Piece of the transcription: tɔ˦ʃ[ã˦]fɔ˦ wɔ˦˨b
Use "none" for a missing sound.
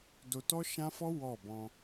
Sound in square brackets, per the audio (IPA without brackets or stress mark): ã˦